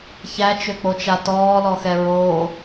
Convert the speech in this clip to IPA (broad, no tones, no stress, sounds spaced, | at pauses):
ç æ t͡ʃ ø k͡p o t͡ʃ a t ɔː l ɔ x ɛ ɹ o